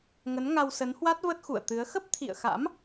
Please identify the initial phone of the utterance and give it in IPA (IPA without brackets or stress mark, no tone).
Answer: ŋ